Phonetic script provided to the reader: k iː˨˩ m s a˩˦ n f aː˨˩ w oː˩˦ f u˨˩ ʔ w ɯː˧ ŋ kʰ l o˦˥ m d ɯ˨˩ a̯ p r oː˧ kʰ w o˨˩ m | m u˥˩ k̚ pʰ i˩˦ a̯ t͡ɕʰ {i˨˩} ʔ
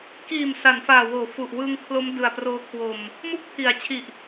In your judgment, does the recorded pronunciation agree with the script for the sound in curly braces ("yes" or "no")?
yes